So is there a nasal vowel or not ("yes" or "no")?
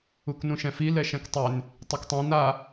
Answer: yes